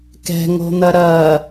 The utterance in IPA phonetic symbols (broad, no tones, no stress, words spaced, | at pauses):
kɛ̤ŋo̤n̪ɐ ɾɐ